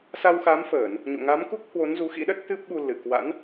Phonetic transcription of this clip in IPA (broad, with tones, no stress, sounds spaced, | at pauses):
s a˧ w x a˨˦ m f əː˧˩˨ n | ɲ o̰˧˨ ŋ a˨˦ m k u˦˥ k̚ h w o˨˦ n z u˨˦ x ḭ˧˥ ɗ ə˦˥ t̚ t̪ ɨ˦˥ p̚ ɓ u˧ l ɨ˧˩ k w a̰˧˥ n